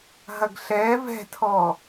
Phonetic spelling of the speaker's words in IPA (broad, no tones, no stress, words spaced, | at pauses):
ɦɐɡɬɛːv ɛ̤tʰɔ